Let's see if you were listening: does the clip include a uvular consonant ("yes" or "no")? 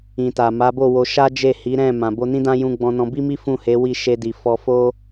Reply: no